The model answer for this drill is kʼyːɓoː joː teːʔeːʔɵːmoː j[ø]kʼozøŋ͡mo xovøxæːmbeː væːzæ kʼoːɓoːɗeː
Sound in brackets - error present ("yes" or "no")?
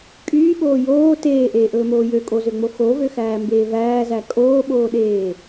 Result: no